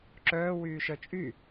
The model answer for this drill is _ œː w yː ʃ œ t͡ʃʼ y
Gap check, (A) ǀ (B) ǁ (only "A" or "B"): B